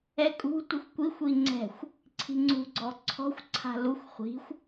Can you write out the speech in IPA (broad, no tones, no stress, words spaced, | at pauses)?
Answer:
ɛkʼṳ tʷɨxʷkʷixʷ iŋ͡ǀɛ̤xʷ | ǀʰi̤ŋ͡ǀṳ ɡ͡ǀɔǀʰɔ̤xʷ ǀʰa̤luxʷ χʷi̤xʷ